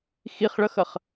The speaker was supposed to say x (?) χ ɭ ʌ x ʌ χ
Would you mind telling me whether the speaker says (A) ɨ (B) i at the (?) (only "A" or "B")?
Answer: B